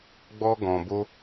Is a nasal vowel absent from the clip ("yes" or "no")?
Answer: no